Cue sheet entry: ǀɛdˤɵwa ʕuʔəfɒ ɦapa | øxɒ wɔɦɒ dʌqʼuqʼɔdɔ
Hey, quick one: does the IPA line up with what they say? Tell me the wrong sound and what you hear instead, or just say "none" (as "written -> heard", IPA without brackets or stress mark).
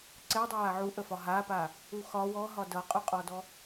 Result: ø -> u